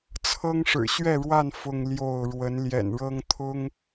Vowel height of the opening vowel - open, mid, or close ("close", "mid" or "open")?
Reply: mid